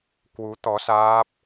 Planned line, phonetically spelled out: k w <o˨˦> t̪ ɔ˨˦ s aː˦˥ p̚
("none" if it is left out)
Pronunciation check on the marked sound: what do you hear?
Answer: u˨˦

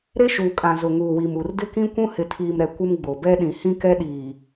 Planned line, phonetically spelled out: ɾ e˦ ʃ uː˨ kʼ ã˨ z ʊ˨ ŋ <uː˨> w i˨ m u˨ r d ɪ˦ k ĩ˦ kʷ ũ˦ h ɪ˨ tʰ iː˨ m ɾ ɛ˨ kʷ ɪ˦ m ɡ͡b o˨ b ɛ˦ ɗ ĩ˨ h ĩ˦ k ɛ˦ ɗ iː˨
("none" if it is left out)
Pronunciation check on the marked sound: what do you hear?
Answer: uː˨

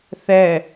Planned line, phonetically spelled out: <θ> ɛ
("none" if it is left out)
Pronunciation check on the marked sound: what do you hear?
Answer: θ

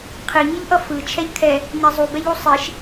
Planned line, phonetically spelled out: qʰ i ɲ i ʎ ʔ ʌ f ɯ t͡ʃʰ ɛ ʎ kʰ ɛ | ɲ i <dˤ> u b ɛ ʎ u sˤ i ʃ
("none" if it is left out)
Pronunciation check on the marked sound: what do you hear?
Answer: zˤ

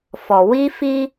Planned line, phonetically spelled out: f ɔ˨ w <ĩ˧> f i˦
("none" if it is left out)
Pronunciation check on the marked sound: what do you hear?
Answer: i˧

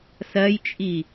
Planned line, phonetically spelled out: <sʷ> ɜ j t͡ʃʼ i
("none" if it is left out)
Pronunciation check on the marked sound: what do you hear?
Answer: s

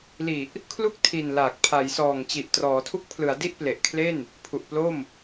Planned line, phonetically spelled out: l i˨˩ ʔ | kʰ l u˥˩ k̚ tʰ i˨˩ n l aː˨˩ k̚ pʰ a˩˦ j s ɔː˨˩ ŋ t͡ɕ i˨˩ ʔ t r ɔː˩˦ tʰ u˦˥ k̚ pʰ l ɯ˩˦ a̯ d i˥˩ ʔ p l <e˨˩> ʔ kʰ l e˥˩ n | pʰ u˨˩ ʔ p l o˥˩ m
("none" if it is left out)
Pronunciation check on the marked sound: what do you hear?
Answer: e˨˩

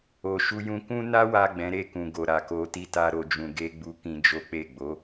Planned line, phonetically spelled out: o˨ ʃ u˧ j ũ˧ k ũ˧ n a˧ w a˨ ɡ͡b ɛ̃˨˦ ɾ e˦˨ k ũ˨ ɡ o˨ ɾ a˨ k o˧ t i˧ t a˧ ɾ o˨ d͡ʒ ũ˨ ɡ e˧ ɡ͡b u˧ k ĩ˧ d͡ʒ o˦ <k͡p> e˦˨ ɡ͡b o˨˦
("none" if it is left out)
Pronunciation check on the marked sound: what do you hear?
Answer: k͡p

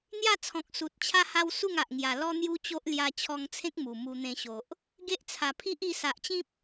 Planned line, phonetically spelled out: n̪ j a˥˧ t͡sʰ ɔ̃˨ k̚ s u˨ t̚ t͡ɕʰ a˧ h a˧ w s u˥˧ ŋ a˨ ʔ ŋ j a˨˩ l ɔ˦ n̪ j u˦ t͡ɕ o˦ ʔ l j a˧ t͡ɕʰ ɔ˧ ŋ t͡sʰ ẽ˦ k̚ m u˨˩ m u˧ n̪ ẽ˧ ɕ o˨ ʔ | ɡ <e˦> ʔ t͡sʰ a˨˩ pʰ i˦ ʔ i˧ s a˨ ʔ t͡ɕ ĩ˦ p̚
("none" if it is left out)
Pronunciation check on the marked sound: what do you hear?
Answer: e˦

